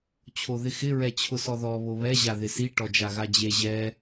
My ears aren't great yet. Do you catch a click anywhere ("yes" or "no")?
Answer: no